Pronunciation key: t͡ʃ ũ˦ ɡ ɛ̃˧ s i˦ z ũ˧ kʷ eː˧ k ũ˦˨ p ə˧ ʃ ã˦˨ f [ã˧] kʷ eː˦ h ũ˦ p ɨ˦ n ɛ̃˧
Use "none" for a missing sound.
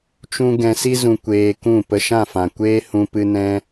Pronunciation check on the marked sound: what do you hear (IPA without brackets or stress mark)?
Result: ã˨